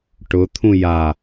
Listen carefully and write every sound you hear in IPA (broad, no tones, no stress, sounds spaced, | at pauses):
ʈ ʊ t̪ʰ ũ j a